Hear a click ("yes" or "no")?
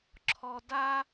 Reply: yes